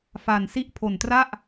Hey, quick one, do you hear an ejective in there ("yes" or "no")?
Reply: no